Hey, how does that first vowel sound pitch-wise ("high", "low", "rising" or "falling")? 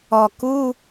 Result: low